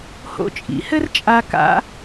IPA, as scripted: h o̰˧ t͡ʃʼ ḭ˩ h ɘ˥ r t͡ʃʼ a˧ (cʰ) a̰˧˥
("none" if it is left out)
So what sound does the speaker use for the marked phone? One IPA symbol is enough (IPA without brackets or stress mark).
k